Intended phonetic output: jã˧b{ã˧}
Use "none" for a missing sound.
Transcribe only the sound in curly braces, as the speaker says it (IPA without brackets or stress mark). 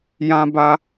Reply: a˧